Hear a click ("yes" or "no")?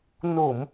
no